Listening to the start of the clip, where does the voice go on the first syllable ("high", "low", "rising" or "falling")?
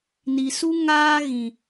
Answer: low